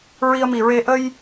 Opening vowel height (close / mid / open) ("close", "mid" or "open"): close